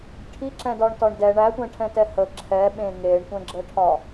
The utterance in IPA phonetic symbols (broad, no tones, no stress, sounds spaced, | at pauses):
ʈʰ i ǁ ɛ̃ d ɒ ɳ t ɒ ɳ d ɛ ɳ æ tʷ ɛ̃ ʈʰ ɛ̃ t ɛ h ə ǁʰ ɛ ɓ ẽ ŋ e ɳ tʷ ɛ̃ ɡ͡ǁ ə ʈʰ ɒ